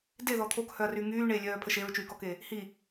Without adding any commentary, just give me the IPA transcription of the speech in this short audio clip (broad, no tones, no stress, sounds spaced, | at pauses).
d e ð ɔ t̪ʰ o k h œ ɐ̯ r y ŋ yː ɳ eː lʲ œː pʰ ə ʃ e ɹ t͡ʃ yː k ɔ k e | h i